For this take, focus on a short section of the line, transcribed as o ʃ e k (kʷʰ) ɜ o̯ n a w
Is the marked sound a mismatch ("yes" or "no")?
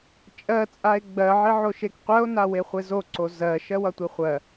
yes